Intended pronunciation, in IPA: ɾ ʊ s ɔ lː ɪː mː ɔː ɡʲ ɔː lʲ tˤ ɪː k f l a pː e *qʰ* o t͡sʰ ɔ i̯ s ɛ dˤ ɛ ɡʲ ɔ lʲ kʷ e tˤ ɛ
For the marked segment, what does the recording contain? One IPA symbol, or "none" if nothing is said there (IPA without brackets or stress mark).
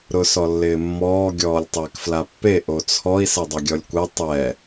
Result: ʔ